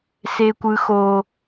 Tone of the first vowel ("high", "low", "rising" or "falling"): high